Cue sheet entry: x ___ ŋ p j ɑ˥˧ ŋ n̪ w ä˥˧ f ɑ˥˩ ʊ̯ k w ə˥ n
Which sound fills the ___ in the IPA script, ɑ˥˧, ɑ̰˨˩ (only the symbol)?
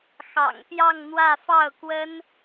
ɑ̰˨˩